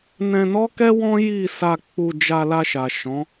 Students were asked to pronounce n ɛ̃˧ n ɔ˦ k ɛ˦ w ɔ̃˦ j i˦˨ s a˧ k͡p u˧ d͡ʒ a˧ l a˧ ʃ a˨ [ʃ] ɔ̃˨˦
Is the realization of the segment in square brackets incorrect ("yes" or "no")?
no